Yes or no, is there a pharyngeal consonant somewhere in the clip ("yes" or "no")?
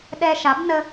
no